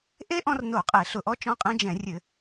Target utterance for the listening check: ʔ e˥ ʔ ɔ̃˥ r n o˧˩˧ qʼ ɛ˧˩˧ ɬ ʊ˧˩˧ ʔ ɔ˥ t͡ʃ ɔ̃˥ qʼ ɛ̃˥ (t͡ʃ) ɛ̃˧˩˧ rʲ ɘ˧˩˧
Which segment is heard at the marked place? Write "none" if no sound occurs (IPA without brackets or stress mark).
d͡ʒ